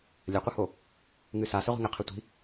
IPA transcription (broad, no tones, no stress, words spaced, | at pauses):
lʲɐqʷɨho | ŋɨsa sɛʁʷi̤ŋɘ qʰɘtʷi̤